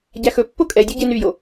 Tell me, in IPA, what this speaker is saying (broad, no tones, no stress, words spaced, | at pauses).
ɟæxɵpːo kʼɛdʲu ɟenyjo